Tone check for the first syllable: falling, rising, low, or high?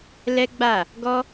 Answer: high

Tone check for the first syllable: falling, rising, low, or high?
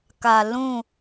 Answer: low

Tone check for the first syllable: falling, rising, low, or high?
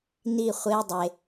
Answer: falling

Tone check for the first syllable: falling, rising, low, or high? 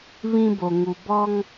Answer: high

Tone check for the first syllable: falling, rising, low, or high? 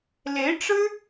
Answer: rising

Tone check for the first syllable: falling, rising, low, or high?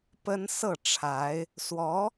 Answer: high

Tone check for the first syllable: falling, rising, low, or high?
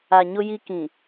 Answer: low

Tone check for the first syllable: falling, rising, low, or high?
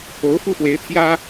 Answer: rising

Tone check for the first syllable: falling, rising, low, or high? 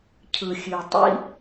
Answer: low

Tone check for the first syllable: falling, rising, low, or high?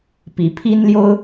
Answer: rising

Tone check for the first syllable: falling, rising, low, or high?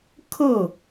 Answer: falling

